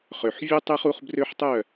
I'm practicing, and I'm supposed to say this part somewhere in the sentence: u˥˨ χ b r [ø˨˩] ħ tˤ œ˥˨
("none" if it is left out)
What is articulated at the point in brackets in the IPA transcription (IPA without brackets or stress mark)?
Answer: ø˦